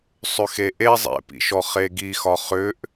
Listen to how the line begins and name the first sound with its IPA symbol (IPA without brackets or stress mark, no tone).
sˤ